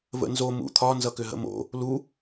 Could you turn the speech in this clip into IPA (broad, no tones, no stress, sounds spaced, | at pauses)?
v ə̰ n z o m ṵ t̪ʰ ɒ n z ʌ k ʏ ɦ ə̰ m o̰ | l u